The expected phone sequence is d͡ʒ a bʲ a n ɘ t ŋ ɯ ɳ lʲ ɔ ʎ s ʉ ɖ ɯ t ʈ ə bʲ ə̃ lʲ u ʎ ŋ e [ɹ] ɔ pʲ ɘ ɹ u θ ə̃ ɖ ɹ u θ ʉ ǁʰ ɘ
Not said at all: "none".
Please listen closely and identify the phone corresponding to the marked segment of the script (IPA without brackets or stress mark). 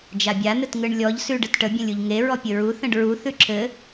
ɹ